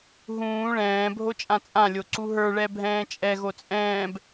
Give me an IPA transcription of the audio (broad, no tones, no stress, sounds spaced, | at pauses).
ɦ ũː ɭ ɛ̃ː bʱ o t͡ʃʼ ã t͡sʼ ã lʲ o ǀ u ɦ ə˞ ɭ ɛ bʱ ɛ̃ː t͡ʃʼ ɛ ɣ o t͡sʼ ɛ̃ː b